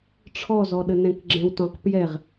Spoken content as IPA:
ʈ͡ʂʰɔzɔɗənɛ̃k ɡ͡ǁɛ̃wtɔ̃q pjɛʁ

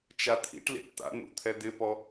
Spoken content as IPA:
t͡ʃat̪ʰḭʈlḭʈ t̪a̰nṵt̪ʰɛ d̪ɪpɔ

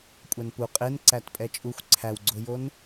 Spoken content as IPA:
kʷʼænpu qʼenǀæt pʼɛt͡ʃʼuxʷ ǀʰæwɡ͡ǀojon

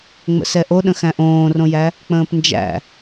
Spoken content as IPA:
ŋ͡mə̰sɛʔoɗə̃ xæ̃ʔõːrõjæ | k͡pə̃ːpnd͡ʒæ̰

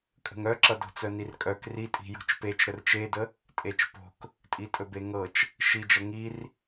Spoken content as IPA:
kʼə̤ŋœǁʌ do̤t͡sœnirkʼœk ritʼi̤ jo̤t͡ʃpet͡ʃ ɾərt͡ʃedə | tʼet͡ʃpo̤k | tʼitʼɵbeŋɤt͡ʃ | ʃid͡ʒə ŋir

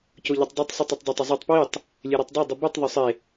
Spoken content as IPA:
coʎetˤdˤʉtˤ sˤɨtˤotˤdˤotˤ ozˤetˤ pwitˤ | lʲeɾutˤdˤa dˤibitˤ ðˤɵsˤe

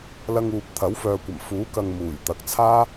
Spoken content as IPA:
lɐ˧ŋ uː˨p̚t̪ʰɐ˨˥wfœː˨kʷɐ˨˩m fuː˨˥kɐ˨ŋ muː˨˩jt̪ɐ˨˥k̚t͡sʰaː˥

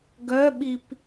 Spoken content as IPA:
ɡœɓip

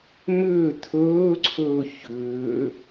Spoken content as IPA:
mʏː t̪ʰɵːǀʰɵː çʏː

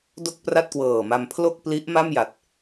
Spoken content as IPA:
do˥˩k̚pra˥˩t̚kwɤː˨˩ma˧m pʰlo˥˩k̚ pli˦˥ʔ ma˥˩mja˨˩t̚

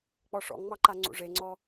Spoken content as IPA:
k͡pɔʂɔ̰ŋŋ͡mɑǃa ŋ͡ǀṵʐeŋ͡ǀɔ

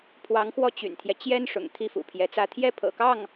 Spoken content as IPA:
pʰwɑ˧˥ŋxwɔ˥˩t͡ɕy̰˨˩nt̪ʰjɛ˦ t͡ɕjɛ˥n ʂʊ̰˨˩ŋ t̪ʰi˥˩fṵ˨˩pʰjɛ˧˥t͡sä˥ t̪ʰjɛ˥pʰɤ̰˨˩kɑ˥˩ŋ

